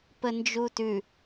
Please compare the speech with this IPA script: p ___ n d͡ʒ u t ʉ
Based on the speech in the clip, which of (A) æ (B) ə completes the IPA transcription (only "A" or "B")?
B